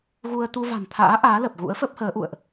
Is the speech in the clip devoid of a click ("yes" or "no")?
yes